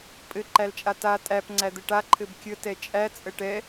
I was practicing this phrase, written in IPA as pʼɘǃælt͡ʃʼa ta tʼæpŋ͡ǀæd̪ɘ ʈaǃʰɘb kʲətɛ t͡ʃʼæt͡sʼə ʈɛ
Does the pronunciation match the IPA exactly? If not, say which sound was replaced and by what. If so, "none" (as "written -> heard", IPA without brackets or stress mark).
none